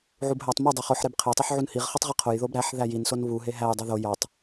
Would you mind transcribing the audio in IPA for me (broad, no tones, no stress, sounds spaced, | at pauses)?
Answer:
ʕ u b ɦ æ tˤ m u dˤ e χ o ħ ɾ e b qʰ e tˤ i ħ ʕ u n h i ʁ χ i tˤ ʁ i qʰ o j ð o b ɾ æ ħ ð æ j i n s o n β u ɦ e ɦ æ j dˤ o ð o j ɒ tˤ